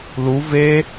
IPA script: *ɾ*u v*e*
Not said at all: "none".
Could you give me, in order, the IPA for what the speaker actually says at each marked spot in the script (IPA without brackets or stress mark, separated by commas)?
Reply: l, e